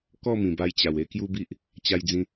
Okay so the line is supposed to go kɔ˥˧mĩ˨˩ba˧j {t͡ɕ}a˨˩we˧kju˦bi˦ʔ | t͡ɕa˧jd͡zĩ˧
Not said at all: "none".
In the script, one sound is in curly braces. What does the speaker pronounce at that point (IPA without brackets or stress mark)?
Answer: t͡ɕ